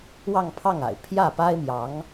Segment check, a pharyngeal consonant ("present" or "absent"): absent